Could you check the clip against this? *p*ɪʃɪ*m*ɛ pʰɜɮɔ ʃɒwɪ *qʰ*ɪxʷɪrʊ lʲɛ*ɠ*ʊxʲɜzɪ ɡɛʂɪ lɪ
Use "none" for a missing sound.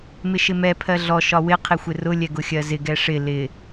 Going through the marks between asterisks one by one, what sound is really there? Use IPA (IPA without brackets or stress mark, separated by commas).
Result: m, m, qʰ, ɡ